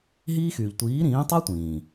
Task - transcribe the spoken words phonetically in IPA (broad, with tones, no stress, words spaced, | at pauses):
ɦiː˦xyː˨ʎ tʷiː˨˦ɾĩː˨˦tˤa˦ tʷĩː˨